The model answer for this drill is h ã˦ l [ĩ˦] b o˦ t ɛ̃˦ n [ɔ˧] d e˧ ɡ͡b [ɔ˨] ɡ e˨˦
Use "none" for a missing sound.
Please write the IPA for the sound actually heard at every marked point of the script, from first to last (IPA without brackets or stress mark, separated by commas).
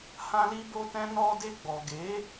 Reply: i˦, ɔ˧, ɔ˨